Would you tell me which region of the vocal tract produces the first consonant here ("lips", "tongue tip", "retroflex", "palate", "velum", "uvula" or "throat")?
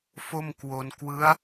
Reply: lips